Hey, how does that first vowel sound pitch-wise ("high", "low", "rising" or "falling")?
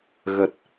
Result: low